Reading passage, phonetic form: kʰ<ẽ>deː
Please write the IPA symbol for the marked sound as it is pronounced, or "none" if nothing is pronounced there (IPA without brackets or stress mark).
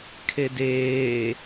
e